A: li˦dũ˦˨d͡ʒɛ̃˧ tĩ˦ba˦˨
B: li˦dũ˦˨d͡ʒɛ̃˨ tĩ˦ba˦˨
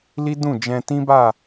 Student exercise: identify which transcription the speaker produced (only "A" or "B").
A